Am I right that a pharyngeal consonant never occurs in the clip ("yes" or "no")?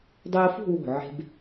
no